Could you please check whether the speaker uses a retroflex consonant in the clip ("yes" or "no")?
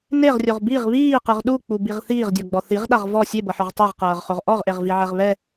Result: no